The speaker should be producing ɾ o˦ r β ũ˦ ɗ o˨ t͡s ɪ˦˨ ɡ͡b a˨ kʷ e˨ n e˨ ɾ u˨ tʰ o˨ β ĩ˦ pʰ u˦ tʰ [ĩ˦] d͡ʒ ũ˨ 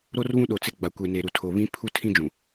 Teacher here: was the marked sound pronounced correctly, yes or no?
yes